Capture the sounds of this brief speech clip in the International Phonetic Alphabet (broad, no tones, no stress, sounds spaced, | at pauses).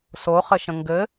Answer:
s o χ ɘ ʃ ə̃ ŋ ɡ ɘ